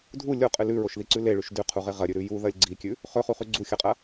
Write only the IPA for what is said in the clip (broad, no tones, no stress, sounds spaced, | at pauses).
dʱ u lʲ o qʼ ɨ l ʉ ɹ o ʃ ð i ǀ ʉ l e ɭ ʉ ʃ d ʉ qʰ u ʁ e ʁ ɐ ɾʲ ʉ ɾ ʉ j u ð ɐ lʲ ɡ͡ǀ i kʲ ʉ | χ ɵ χ u χ ʉ ɡ͡ǀ u xʲ ɐ qʼ ɐ